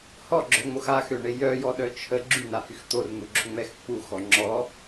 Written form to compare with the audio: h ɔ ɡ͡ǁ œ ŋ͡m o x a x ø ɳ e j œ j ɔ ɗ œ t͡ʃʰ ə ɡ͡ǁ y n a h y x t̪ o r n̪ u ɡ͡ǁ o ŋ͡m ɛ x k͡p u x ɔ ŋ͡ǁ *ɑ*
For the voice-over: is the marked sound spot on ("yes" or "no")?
no